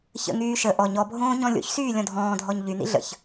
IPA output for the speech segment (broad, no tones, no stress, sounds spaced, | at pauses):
ç ə̰ ŋ yː ʃ ə ʔ ɔ ɲ ɔ bʱ õː ɲ ɔ̃ lʲ o̰ ç s yː lʲ ɔ̃ dʱ ɔ̃ː dʱ ɔ ɲ ʎ y n̪ ḭ ɮ ə̰ ç